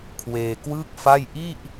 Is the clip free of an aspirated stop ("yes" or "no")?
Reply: no